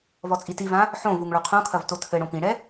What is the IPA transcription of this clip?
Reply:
vɔt͡sʼitivã | ħõvuŋ ɭuqʰõkʰɐv totʰɘɽõ pĩɽɛ

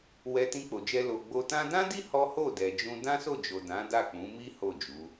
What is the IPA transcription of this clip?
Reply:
wɛ˧tĩ˧k͡po˨d͡ʒɛ˧ lo˨ɡ͡bo˧ tã˧dã˦di˦ hɔ˦ ho˦˨dɛ˨d͡ʒũ˧ dã˦so˦˨d͡ʒo˨ dã˨˦da˦˨k͡pũ˨˦mi˦ ho˦˨d͡ʒu˨˦

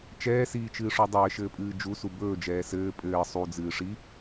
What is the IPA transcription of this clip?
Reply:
t͡ʃɛːsiːt͡ʃɨːʂo dˤɘːʃɘːpʼɨː d͡ʒusu bɵːd͡ʒɛː sɘː pʼɘː sˤud͡zɨːʂi

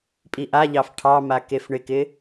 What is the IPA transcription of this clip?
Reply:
pʼiʔaʎɑf ʈʰɑma kefɳɪkɪ

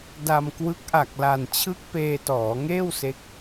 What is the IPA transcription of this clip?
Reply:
da˧mkwɯ˦˥k̚ ʔa˨˩k̚la˨˩nt͡ɕʰɯ˦˥k̚ peː˧tɔː˩˦ŋeː˥˩w se˦˥k̚

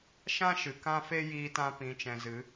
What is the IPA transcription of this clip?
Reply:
ʃã˦ʃɨ˨ kã˧fe˧ jiː˦tã˦ pĩ˨t͡ʃɛ̃˨zɨ˨˦

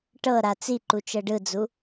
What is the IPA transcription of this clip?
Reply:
ʈɤɾa t͡siǃut͡ʃɤ ɖɯd͡zu

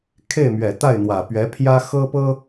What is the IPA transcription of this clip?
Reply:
kʰe˥˩ɪ̯mɥɛ˨˩ t̪a˥˩ɪ̯n̪wä˨˩pɥɛ˧˥pʰjä˥ xɤ˥pɤ˥

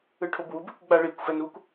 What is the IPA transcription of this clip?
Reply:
ɯʈʰobwub ekʷ ɡ͡baɭikʷ fɛnukʷ

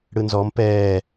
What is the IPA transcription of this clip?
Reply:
ɽɯnzɔm pɛː

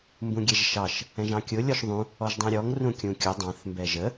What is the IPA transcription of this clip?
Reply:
mbũɡʲɛʒʃɑʃ | ɛ̃ʒɑ̃kʲʊ lʲɔʃðˤũ | ɔʒdˤɛ̃ɾʲɔŋ rũkʲũkʲʊ dˤɑ̃θ mbɛʒə

